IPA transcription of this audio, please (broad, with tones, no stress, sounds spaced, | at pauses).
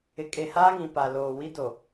ɪ˨ kʼ e˨ h aː˦ ŋ ĩ˨ p a˨ l oː˨ w i˦ d o˨